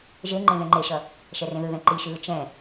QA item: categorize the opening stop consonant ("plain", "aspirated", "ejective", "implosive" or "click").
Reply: click